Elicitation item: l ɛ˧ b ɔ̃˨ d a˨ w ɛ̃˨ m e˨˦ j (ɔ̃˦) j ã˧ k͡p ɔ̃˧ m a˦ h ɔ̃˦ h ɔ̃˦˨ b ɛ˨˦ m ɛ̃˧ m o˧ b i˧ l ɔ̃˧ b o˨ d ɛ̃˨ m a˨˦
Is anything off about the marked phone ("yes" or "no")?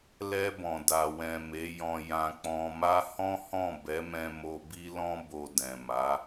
yes